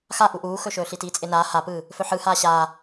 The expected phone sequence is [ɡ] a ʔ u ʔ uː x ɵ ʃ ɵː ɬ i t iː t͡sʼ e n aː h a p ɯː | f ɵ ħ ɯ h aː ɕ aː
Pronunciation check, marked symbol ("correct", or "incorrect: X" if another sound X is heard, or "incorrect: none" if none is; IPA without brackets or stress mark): incorrect: x